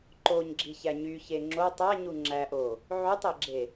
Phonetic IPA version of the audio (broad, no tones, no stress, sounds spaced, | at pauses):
ǃ o ɲ ɡ͡ǁ i ç æ ɲ y ç e ŋ͡ǁ o tˤ æ ɲ u ŋ͡ǁ æ ʔ o | ʕ y tˤ e ɡ͡ǁ e